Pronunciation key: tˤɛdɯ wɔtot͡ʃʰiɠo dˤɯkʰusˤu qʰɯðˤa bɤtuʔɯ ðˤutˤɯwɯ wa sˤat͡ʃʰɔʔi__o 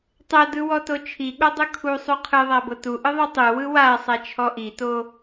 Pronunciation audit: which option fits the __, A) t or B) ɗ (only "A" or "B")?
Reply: A